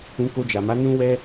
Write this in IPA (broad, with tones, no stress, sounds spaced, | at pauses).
ũ˧ k o˧ d͡ʒ a˨ m a˨˦ n ũ˦ w ɛ˦